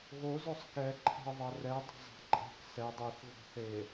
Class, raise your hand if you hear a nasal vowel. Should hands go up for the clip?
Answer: no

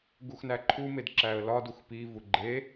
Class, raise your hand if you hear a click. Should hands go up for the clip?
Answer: yes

